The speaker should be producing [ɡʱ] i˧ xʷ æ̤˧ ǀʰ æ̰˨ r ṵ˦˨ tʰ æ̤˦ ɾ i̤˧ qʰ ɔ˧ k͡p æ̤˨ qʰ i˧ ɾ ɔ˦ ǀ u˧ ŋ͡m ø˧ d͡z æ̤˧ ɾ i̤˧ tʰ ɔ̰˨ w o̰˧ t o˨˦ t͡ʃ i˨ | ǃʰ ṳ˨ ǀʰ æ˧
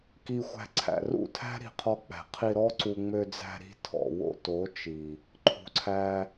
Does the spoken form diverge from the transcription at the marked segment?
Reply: yes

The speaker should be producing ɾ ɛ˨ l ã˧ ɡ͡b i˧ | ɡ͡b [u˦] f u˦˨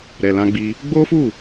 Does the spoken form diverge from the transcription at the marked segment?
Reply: yes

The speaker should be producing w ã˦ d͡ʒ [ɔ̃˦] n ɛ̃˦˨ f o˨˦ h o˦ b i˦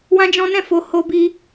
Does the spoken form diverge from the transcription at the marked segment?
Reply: no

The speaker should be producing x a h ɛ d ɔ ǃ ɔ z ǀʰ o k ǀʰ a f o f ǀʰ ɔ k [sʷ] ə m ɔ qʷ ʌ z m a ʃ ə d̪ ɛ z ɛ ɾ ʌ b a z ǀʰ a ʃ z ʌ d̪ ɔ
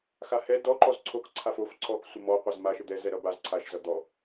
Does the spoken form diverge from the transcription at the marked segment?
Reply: no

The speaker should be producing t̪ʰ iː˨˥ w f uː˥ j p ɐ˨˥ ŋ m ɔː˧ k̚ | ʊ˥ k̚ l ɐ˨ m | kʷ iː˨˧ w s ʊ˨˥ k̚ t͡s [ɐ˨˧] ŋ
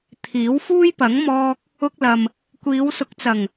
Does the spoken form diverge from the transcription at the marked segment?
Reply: yes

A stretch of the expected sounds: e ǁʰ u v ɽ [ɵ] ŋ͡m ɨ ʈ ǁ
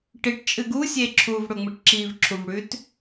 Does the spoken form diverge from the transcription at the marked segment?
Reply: no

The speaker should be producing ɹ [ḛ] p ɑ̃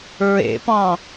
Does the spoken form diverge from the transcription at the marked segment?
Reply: no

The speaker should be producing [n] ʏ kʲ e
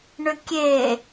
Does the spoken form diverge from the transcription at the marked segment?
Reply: yes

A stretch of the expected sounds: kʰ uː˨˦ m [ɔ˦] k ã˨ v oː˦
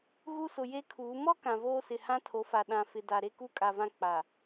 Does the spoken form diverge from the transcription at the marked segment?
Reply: no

